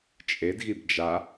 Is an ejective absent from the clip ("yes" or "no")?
no